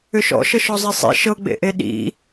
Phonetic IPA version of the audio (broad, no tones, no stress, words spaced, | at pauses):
ʏʃɔ̰ʃɤʃ ɔzˤesˤḭ ʃɤɡ͡bḛʔe ɗḭ